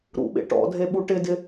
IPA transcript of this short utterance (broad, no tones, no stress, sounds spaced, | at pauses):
ɾ ṵ ɓ ḛ ʈ ɔ̰ dʱ e ɓ u ʈ ɪ d ɪ